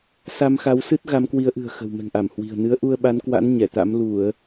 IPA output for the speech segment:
sa˧mxa˨˦wsɨ˦˥t̚ ɣa˨˦mkwi˨˦ə̯ʔɨ̤˨˩ə̯xə̤˨˩w mɛ̤˨˩ŋʔa˧˩m hwi̤˨˩ə̯ nɨ˨˦ə̯ ʔu˧ə̯ɓa˨˦nkwa̰˧˥n ɲɛ˧˩t̪a̰˧˥m lu˧˩˨ə̯

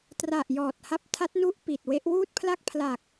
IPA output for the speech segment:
tra˨˩ʔ jɔː˨˩t̚ha˦˥p̚ tʰa˦˥t̚nu˥˩ʔ pi˨˩t̚we˦˥ʔ wuː˥˩t̚pʰla˥˩k̚pʰla˨˩k̚

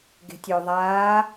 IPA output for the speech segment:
ɡe̤tʲø ðˤaː

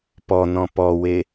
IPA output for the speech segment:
pɔnɔ̃ pɔwe

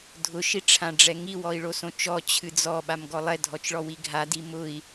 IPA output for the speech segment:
dʱʊ ʃiʈ͡ʂʰãɖ͡ʐɛŋi wɔi̯ɭosõt͡ʃɔ t͡ɕʰɨd͡zɔ ɓamɡɔlˠɛ dʱɔt͡ʃɭɔwiɡʱa dimʊi̯

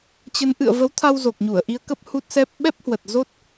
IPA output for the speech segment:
t͡ɕə˨˦nʔɨ̰˧˨ə̯ və˨˦wt̪ʰa˧w zo˨˩k̚ɲu˧˩ə̯ʔi˧ə̯kə˦˥p̚ hu˦˥t̚sɛ˦˥p̚ ɓɛ˦˥p̚hwə˨˩t̚zo˦˥t̚

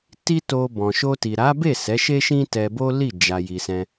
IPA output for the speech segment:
ti˦to˧ bɔ̃˨ʃo˧ ti˨ɾa˨˦be˦˨ sɛ˨˦ʃe˦ʃĩ˦ tɛ˧bo˦li˦˨ d͡ʒa˨ ji˨sɛ̃˧

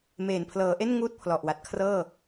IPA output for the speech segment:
meː˨˩npʰlɤː˩˦ʔe˥˩n ŋuː˥˩t̚pʰlɔ˨˩ʔwa˨˩t̚kʰrɤː˥˩

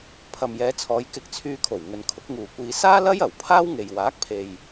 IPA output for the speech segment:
pʰɐ˨mjɛː˨˧t͡sʰɔː˨˧j kɪ˧k̚t͡sʰyː˧kʰo˨˩w ŋɵ˨nkʰʊ˨˥k̚ŋuː˨kʷiː˧ saː˥ lɐ˥jɐ˨˩w pʰaː˥wŋe˨j waː˨˥k̚pʰe˨j

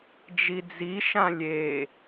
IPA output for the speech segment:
d͡ʒid͡ziʃã lʲe

